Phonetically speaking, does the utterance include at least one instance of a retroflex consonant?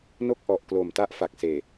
no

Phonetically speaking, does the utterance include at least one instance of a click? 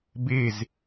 no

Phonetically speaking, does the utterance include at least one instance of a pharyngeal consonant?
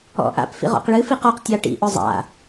no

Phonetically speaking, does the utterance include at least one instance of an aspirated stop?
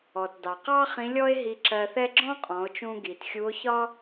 no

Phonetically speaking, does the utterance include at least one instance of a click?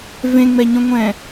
no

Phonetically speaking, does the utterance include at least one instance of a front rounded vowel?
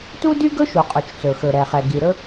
yes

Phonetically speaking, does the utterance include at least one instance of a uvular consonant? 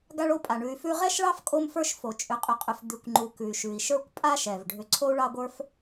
yes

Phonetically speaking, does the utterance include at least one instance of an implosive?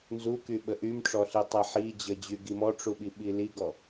yes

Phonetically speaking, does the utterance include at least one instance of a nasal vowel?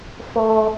no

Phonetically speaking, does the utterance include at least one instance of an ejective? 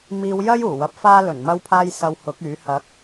no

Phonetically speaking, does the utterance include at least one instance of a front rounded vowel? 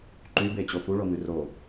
yes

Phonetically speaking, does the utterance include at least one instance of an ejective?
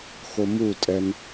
yes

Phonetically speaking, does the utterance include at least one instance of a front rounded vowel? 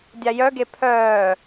yes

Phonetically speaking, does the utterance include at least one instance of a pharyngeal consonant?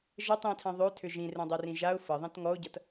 no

